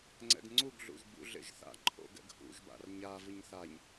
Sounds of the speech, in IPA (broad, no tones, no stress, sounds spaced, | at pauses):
ŋ͡ǀ ɛ̰ ɡ ŋ͡ǀ u ɡ ɮ ṵ ʒ b ṵ ɮ ḛ ʒ θ a̰ ǃʰ o̰ ɡ ɛ̰ ɡ h ṵ ʒ b a̰ r ɲ a v ɯ ɲ θ a ɲ